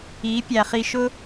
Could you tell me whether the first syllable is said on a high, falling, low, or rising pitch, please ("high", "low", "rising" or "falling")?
rising